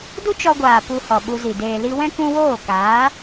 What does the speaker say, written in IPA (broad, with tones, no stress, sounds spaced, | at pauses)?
d u˦ t͡ʃ ɔ˧ ɡʷ aː˨ p u˧ h ɔ˨ ɓ u˧ z i˨ d eː˨ l i˧ w ɛ̃˦ k ũ˧ w oː˦˨ k aː˨˦